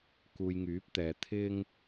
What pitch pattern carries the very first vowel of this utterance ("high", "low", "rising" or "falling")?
low